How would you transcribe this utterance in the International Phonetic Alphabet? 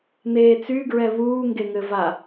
n̪ eː t͡s y ɡ ɹ ɛ β uː ŋ ɡ e ŋ ɘ v a

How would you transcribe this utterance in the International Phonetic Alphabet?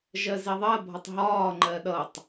ʒ ɜ z i ðˤ ɜ bʱ ʌ tˤ ɦ ɒː ŋ͡ǃ ɜ ɗ ʌ tˤ

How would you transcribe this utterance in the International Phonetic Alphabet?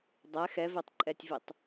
dˤ ɛ x ɛ v e tˤ ǃʼ ɛ tʲ v i tˤ

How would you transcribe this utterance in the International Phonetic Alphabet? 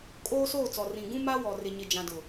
kʼ oː˦ s oː˦˨ t͡s ɔ˨ r ĩ˨ ɡ ũ˦ m a˦ w ɔ˨ r ɪ˨ ɲ ɪ˨ d͡ʒ ã˨ d ʊ˨

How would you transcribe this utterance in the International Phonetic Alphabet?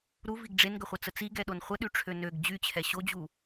ɾ u v i ɡ ɖ͡ʐ e n ɡ ə χʷ ə t͡s ə t͡s i ɡ ɛ ɗ o n χʷ ə ɗ y ʈ͡ʂʰ ø n ø ɡ d͡ʑ y t͡ɕʰ ɛ ɕ o d͡ʑ u

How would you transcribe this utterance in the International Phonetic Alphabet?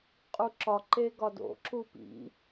qʼ u ǁ ɒ ǃ e ɡ ɒ d o̰ ǁ u p ḭ

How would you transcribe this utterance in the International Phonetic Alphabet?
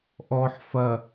ʔ ɔ ħ f ɐ

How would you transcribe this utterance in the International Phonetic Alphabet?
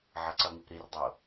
ʕ ʌ ǀ ʌ ŋ i p ɾ i r dˤ o

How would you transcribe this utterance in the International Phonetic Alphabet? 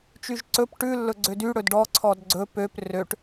t͡ʃ y ʒ ǀ ɵ p ʈ ʉ lː ɵ ɡ͡ǀ ø d y ɽ ɵ d ɖ ɔ ǀʰ ɔ d ɡ͡ǀ ɵ p ø p r ø ʈ

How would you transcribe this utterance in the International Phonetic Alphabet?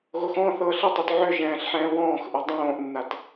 ɣ o x ɔ̃ θ ɤː ɬ ɪ tˤ o t ʕ ʏ ʒ ɛ̃ː ɬ ħ ɛ̃ː w ɔ̃ː x ʔ ɘ dˤ õː ʔ nː a t

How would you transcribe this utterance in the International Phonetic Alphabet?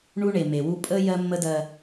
ɳ u˦ ɳ e˨ m e˨ w u˦ pʼ ə˦ j ɜ˦ mː ə˦ d ɜ˦

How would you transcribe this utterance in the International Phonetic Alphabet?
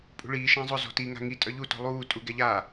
pʼ ṳ ɭ iː ʃ ã zˤ ʊ z ɔ̤ t i ŋ a̤ ŋ i tʼ œ ʎ u t ɔ̤ lˠ uː tʼ u ɡ ɛ ʎ a

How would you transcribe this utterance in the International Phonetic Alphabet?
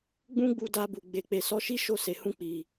ɡ͡b ũ˦ ɡ͡b u˧ d a˧ b u˨ ɡ͡b e˨ k͡p e˨ s ɔ˧ ʃ i˦ ʃ o˦˨ s e˨ h ũ˧ k͡p i˨

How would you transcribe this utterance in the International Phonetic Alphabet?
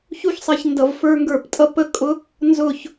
ç u˦ ç sˤ ɛ˧ ç n d ʌ˧ v f ə˞˦ ŋ ɡ ə˞˦˨ p tʼ ʌ˦ p ə˦ kʼ ʊ˦ | n z ʊ˦˨ ç

